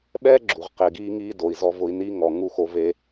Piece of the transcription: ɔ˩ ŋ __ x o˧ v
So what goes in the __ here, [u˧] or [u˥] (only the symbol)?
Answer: u˧